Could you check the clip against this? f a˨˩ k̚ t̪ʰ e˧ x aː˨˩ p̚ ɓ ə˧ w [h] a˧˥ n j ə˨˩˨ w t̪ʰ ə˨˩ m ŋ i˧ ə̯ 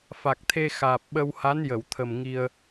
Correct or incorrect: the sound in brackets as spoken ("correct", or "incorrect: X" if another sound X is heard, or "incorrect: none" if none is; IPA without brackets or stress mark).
correct